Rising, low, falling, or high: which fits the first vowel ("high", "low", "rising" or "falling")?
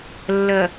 low